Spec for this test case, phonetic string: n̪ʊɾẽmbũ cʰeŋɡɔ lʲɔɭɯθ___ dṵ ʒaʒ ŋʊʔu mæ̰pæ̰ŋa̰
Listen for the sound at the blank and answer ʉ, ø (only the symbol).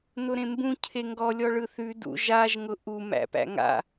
ʉ